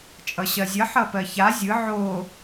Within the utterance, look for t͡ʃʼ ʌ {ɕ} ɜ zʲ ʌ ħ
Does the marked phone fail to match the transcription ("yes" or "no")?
no